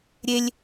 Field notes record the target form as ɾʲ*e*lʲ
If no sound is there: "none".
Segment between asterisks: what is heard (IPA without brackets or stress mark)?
e